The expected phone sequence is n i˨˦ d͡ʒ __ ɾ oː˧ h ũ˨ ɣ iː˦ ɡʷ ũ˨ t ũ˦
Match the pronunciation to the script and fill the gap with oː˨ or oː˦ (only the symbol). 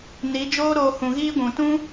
oː˦